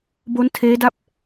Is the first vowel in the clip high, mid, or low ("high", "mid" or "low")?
mid